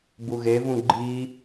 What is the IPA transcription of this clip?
b u ɣ e v ũ ɡ͡ǃ i

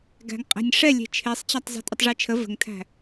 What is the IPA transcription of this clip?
ɡ æ̤ ŋ qʼ æ̤ nʲ ʂ ɛ lʲ e̤ t͡ʃʰ e sˤ t͡ɕ æ tˤ zˤ e̤ tʼ ə tˤ ʐ e t͡ʃʰ ə v ə̤ ŋ tʰ æ̤

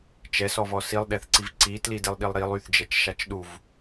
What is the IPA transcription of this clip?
t͡ʃ ɛ s ɔ v ɔ s i lˠ ɗ ɛ θ ǀ i v ǀ i t l i d e lˠ ɗ i lˠ ɾ i lˠ y θ d͡ʒ ɛ t͡ʃ ʃ a t͡ʃ ɗ u v

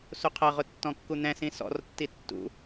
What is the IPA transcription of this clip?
s u qʰ ʌ ʁ ʊ tː ɔ̃ kː u n̪ ɛ̃ s ĩ s ɔ̰ r tː i tː ṵ

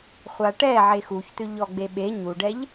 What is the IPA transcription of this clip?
χʷ a ʈ ɛ ʕ e x u ç t̪ ʏ ʎ ɔ ɡ͡b e ɓ e ɲ u ɖ ɛ ʎ

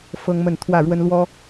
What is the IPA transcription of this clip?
f ɤ˦ ŋ m ə˥˨ n t̪ʰ w ä˥˨ ɻ w ə˦ n l w ɔ˦

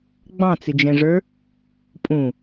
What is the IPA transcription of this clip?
ɡ͡b ɑ̃ t͡s ɪ d͡ʒ ɛ̃ ʐ ə˞ | pʼ ũ

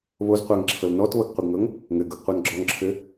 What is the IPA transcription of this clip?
β o z qʷ æ ŋ ǁʰ ɤ l n ɔ t β ɤ ɡ qʷ ɘ ɡ ŋ ɤ ŋ | ŋ ɘ ɡ ɤ ɡ qʷ ɤ n ɡ͡ǁ ɔ ŋ ǁʰ ɘ

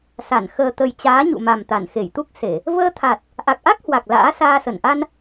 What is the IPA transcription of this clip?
s a˧˩ n x əː˨˩ t̪ ə˨˩ j t͡ɕ aː˨˦ ɲ ṵ˧˨ m a˨˩ m t̪ a˧˩ n x e˧˩ j t̪ u˦˥ k̚ s e˧˩˨ | v əː˧ t̪ʰ a˨˩ t̚ | ʔ a˨˩ k̚ ʔ a˦˥ k̚ h w a˨˩ k̚ l a̰ː˧˥ s aː˧ s ə˧˩ n ʔ a˧ n

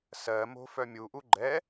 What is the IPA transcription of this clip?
s ɜ m o̤ f œ mʲ u ʔ u ɡ͡ǃ ɛ

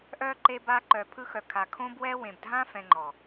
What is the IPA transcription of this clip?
ʔ œ˧ ǃ e˧ b a˧ ǃ œ˨ pʰ ɯ˧ x œ˨ kʰ a˨ kʰ õ˦ b w ɛ˦ w ẽ˨ b dʱ ã˦ f ɛ̃˧ ŋ͡ǃ ɔ˨

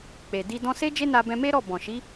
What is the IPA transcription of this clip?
k͡p e˨ d i˧ d ɔ̃˧ s e˦ d͡ʒ e˦ n a˧ b ɛ̃˧ m e˦ ɾ ɔ˦˨ b ɔ̃˨ ʃ i˨˦

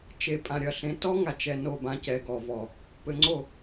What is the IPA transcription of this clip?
t͡ʃ e˨ pʼ ã˨ ɾʲ ɐ˨ ɬ ẽ˨˦ t ɔ˦ ŋ a˨ t͡ʃ ɛ˨ n o˦˨ b ã˦ c ɛ˨ ɡ ɔ˨ v ɔ˨ | p ɘ˨ ŋ͡ǀ o˦˨

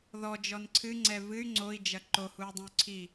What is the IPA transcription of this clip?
ð ɔ d͡ʒ ɔ n ǀʰ ɨ ŋ͡ǀ ɛ v ɨ y̯ ŋ͡ǀ o i̯ d͡ʒ ɐ ǃ o h u y̯ dˤ ũ y̯ ǀʰ i

